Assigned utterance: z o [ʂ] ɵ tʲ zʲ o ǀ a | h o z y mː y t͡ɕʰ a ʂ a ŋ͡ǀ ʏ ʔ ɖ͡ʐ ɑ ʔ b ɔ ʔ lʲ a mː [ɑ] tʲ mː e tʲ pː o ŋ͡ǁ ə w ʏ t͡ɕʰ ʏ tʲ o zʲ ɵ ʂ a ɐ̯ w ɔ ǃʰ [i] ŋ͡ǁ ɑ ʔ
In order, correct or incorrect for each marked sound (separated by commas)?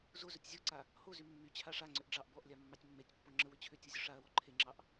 incorrect, correct, incorrect